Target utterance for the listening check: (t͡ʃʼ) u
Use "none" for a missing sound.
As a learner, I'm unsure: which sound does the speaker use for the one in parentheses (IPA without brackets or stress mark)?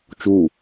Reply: t͡ʃ